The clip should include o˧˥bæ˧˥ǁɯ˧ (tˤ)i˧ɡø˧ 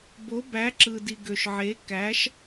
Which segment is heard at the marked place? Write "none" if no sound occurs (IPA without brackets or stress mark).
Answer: d